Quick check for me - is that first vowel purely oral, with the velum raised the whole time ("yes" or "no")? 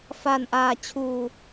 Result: yes